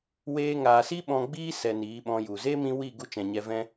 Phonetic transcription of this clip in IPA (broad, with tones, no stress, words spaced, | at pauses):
weː˧ŋaː˨si˦ ɓɔ̃˧ɡ͡biː˦sɛ˨ niː˨˦ɓɔ̃˧ju˨ ze˦mĩ˧ wi˦˨ɡu˧ t͡ʃɛ̃˨ɲɛ˧ vɛ̃˦